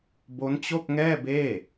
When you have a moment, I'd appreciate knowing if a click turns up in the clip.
no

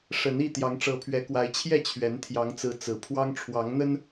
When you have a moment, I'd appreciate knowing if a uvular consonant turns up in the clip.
no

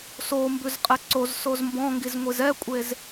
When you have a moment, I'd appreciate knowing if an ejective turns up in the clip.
yes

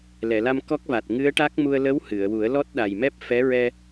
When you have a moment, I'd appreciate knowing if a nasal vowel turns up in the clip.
no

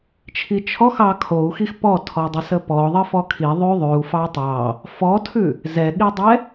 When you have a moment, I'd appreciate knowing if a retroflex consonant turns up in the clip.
no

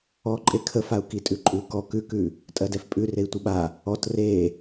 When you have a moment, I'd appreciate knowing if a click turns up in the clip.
yes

